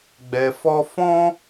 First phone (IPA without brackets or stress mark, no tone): ɡ͡b